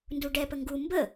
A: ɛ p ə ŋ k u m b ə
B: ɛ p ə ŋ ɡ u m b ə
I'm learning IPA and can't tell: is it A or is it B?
B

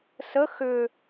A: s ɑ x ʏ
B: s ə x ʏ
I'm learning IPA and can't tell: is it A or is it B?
B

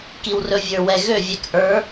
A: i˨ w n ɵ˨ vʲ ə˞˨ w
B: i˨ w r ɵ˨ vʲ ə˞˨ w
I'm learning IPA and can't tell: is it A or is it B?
B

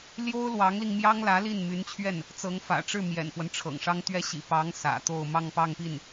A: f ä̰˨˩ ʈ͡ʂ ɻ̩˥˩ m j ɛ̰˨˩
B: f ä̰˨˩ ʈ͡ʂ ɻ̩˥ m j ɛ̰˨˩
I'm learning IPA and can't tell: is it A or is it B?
A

